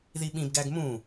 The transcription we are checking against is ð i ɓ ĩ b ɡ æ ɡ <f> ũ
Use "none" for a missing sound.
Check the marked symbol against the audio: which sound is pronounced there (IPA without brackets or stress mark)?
m